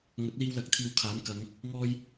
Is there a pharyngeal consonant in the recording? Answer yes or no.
no